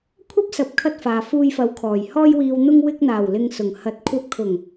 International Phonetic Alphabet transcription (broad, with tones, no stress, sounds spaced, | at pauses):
kʷʰ ɐ˥ p̚ s ɐ˨ p̚ kʰ ɐ˧ t̚ f aː˨ f uː˧ j f ɐ˨˥ w kʰ ɔː˨˩ j h ɔː˧ j w iː˨ w n̪ ʊ˧ ŋ w ɪ˧ k̚ n̪ aː˨˩ w l ɪ˨ ŋ s ʊ˨˩ ŋ h ɐ˨˥ t̚ kʷʰ ɐ˨˥ p̚ kʰ ʊ˨˩ ŋ